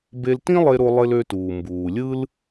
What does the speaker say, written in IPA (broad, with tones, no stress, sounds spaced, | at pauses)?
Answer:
b e˧ l t ĩ˥ lˠ e˧ ɾ o˧ lˠ e˧ l ø˧ t uː˩ m b uː˩ lʲ ɯ˥ l